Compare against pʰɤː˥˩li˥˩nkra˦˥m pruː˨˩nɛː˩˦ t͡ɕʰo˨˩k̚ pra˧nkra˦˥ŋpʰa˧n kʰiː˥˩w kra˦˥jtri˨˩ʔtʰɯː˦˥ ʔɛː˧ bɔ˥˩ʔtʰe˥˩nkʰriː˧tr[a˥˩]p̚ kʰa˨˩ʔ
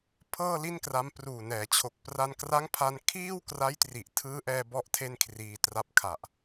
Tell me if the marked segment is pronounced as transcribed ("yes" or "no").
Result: no